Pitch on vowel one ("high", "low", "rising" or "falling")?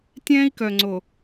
high